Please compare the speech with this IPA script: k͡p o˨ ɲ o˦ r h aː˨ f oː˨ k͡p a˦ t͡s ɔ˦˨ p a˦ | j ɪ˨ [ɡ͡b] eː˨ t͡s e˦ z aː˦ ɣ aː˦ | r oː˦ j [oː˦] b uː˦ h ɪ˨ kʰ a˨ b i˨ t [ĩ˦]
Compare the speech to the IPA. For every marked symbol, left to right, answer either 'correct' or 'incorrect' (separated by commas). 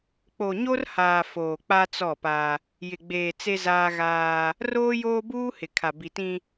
correct, correct, correct